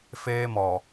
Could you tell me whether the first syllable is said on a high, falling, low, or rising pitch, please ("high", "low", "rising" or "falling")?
high